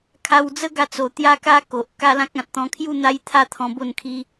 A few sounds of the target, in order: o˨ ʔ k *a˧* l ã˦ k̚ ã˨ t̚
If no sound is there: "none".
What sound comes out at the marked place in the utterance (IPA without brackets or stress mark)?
a˦